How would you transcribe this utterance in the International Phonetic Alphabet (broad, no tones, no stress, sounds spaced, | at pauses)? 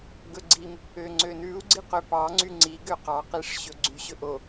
ɡ ɵ ɡ͡ǀ i m | ø ŋ͡ǀ ø n ʉ u̯ ɡ͡ǀ i q ø p ɑ ŋ͡ǀ y ŋ͡ǀ i ɡ ø q ɑ q i ʂ ɕ ɵ ɡ͡ǀ y ɕ ɵ ʔ o